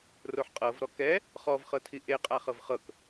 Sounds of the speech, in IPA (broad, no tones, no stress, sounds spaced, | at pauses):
r o ħ qʼ ɤ v ɾ ɔ k ɛ | χ ɔ v χ ɤ tʰ i ʔ e qʼ a χ ɤ v χ ɤ k